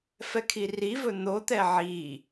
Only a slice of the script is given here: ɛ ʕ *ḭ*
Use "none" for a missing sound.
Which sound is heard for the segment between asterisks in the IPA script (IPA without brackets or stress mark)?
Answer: i